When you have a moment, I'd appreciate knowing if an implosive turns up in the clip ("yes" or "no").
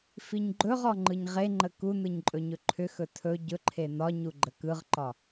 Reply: no